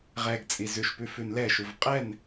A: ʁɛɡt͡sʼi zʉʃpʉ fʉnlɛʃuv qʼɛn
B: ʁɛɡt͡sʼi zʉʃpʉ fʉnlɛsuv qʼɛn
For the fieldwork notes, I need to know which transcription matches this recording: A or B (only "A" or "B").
A